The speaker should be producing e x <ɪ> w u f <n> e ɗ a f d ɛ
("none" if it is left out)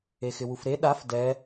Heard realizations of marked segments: ɪ, ɾ

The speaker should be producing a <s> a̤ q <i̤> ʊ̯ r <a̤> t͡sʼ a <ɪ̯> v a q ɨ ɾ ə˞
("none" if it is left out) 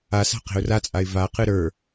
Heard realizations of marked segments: s, e̤, a, ɪ̯

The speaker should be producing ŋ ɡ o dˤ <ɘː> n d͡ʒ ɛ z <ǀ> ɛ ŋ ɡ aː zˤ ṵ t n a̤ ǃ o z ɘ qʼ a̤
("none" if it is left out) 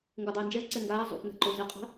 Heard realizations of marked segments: ɘː, ǀ

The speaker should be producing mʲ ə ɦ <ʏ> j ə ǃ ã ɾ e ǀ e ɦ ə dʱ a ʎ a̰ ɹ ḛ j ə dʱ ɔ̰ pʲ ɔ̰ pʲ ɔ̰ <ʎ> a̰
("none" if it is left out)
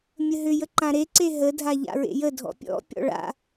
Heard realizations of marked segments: ʏ, ɭ

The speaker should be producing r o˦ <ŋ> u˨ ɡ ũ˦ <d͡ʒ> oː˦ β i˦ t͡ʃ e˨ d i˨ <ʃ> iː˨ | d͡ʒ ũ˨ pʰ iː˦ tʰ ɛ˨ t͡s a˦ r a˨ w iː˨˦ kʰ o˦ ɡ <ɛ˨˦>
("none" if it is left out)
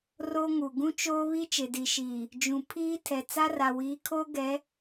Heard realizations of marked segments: ŋ, t͡ʃ, ʃ, ɛ˨˦

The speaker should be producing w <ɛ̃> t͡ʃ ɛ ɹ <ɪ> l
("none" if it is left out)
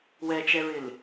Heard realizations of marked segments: ɛ, ɪ

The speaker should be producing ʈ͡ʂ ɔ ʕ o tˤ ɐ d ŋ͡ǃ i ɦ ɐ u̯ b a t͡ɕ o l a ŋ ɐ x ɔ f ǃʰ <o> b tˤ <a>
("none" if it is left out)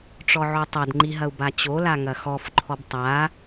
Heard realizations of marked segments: ɔ, a

